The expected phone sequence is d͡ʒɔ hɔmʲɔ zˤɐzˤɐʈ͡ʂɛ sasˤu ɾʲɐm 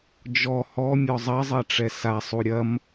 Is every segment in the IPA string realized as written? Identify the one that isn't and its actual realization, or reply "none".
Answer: none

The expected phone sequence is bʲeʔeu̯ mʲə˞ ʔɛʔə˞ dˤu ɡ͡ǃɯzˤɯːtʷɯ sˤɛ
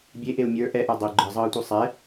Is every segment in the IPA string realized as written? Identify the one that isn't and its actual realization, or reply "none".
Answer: none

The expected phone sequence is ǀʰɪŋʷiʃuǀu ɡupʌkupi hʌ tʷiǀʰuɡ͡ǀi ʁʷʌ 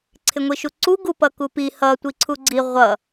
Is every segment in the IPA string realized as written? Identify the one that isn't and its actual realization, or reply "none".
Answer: none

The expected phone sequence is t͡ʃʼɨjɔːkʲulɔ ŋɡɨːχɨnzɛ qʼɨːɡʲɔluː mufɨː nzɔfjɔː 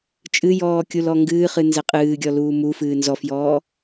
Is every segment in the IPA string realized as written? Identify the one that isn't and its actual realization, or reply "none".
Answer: none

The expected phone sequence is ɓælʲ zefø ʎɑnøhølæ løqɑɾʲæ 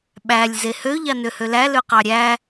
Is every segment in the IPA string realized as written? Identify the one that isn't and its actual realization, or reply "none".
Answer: f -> h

